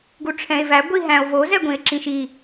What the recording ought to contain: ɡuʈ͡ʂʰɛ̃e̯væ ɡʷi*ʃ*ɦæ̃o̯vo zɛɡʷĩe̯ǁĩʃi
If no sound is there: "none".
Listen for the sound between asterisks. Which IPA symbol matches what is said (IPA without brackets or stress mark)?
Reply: none